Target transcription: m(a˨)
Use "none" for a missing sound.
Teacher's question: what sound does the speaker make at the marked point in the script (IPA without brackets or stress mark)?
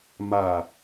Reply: a˨